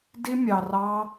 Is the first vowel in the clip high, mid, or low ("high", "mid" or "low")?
high